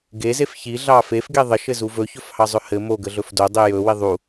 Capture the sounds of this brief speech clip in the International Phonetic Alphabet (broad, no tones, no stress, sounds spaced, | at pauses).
ɡ e z e f ç i ɮ ɑ f e f ɡ e ðˤ ə ʃ ɘ z u v ɵ ç ɵ f h ɑ zˤ ɵ h ɘ m o ɡ ə ɮ ɵ f d o dˤ i j ɵ w i ðˤ u